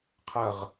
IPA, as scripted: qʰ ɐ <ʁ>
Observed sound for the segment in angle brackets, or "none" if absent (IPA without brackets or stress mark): ʁ